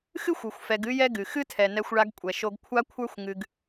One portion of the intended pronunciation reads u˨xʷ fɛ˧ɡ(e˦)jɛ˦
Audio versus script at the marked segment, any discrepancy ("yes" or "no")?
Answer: yes